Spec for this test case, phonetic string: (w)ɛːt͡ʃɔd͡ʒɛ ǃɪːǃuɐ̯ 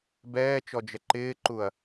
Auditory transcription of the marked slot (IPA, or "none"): b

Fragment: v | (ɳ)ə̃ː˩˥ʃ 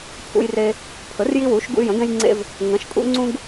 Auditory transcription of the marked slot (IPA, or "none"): ŋ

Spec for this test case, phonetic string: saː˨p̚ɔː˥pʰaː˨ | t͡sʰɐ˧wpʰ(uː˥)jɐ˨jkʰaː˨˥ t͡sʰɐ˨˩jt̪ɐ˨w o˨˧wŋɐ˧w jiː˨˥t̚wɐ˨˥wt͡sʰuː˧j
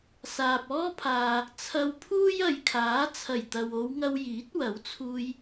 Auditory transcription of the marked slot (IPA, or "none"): uː˥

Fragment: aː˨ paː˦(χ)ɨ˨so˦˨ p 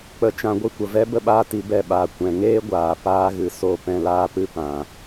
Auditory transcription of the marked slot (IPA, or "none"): ɣ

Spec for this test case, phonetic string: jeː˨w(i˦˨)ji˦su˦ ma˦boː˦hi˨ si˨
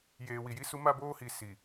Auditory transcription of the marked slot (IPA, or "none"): i˨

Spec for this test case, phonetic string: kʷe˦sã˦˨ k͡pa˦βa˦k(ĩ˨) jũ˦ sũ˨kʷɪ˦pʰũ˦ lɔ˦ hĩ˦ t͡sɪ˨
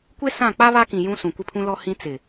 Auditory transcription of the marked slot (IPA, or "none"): ĩ˨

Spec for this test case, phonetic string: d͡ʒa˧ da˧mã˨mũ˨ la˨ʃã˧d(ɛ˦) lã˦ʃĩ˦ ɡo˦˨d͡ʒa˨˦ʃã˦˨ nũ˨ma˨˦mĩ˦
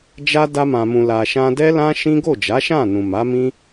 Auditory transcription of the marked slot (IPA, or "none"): ɛ˦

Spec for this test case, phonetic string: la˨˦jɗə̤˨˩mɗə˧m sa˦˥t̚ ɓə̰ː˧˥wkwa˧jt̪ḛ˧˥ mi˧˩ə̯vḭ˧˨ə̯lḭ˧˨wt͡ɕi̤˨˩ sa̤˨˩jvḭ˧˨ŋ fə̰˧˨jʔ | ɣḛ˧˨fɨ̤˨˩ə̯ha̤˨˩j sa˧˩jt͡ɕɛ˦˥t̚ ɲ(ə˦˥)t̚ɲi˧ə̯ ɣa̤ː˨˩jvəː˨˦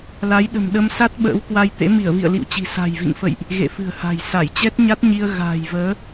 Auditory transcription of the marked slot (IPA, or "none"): a˦˥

